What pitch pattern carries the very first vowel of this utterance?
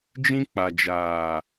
high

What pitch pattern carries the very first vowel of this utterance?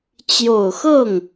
low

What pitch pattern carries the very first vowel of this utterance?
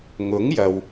rising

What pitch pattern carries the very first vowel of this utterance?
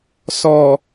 low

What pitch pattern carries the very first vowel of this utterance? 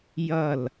falling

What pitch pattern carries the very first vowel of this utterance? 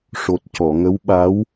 low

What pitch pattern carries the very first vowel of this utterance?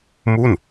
falling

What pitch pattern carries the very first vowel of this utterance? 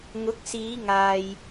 rising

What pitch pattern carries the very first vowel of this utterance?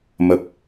low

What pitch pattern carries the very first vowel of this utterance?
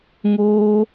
high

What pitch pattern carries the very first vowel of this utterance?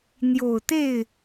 low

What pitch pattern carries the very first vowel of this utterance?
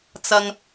low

